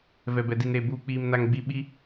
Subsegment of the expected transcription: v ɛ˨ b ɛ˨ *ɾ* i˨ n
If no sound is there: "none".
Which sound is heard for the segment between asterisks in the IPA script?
d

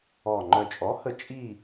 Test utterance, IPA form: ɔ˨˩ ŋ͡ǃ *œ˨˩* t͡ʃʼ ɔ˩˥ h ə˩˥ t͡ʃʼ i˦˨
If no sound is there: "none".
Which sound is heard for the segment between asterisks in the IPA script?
œ˨˩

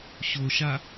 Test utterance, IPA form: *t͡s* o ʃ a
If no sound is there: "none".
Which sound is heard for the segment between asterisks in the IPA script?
ɕ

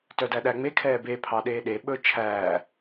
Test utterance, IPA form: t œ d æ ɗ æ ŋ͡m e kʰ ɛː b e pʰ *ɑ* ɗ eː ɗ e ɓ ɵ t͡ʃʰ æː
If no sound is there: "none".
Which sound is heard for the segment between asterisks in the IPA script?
ɑ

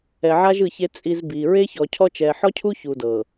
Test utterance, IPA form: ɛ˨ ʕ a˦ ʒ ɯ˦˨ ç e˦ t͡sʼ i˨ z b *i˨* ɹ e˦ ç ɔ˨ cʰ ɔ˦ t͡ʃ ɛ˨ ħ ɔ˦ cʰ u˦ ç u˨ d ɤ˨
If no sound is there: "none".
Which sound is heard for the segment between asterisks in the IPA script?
i˨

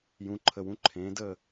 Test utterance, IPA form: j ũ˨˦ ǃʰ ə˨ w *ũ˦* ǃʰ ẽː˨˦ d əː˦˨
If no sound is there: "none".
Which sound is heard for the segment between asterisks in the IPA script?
ũ˦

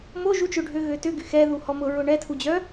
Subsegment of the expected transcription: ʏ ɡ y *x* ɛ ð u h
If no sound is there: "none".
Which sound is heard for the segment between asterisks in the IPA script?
x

